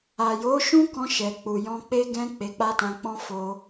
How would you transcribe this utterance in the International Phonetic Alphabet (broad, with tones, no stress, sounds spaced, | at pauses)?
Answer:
a˨ j o˨˦ ʃ ũ˦ k ɔ̃˧ ʃ ɛ˨ k͡p u˨ j ɔ̃˧ k͡p e˦ ɡ ɛ̃˦ k͡p e˧ k͡p a˦ t ã˧ k͡p ɔ̃˦ f o˧